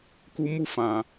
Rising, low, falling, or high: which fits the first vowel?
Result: high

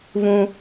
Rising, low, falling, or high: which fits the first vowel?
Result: high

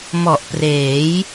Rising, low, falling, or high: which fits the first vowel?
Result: low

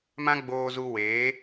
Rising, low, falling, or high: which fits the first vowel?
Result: high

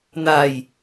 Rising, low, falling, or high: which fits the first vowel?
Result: low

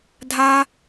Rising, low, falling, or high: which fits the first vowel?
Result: high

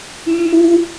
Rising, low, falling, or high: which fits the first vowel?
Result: high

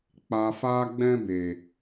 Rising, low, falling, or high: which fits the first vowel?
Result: low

